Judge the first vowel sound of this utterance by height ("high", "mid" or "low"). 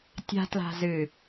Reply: low